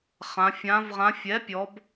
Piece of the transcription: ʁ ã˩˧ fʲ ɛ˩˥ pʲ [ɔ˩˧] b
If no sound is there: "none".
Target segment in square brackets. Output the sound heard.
ɔ˩˧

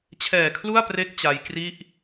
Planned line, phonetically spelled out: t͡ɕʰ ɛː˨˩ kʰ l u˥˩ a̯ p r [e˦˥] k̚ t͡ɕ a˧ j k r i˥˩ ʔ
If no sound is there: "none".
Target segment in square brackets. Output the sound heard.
e˦˥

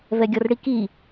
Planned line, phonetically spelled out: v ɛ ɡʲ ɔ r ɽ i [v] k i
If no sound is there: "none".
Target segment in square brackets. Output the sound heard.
none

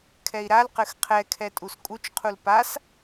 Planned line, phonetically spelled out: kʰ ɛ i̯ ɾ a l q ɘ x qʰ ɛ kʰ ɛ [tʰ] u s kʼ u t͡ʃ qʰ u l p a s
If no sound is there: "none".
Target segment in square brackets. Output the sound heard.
tʼ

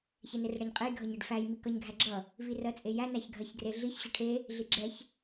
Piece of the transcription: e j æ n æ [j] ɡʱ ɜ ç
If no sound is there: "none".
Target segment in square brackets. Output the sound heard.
ç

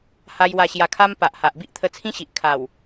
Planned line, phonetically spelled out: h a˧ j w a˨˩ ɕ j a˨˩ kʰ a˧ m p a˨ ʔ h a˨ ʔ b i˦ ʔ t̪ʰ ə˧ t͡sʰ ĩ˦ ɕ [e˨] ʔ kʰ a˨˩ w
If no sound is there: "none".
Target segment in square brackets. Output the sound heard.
i˨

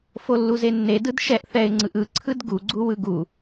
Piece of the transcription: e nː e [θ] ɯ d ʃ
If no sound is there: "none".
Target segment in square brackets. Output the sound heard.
d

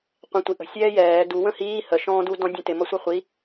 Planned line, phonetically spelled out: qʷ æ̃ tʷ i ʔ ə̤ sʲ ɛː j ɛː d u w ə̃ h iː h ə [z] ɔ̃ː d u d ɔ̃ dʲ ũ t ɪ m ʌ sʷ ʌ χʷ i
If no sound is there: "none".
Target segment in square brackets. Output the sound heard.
ʃ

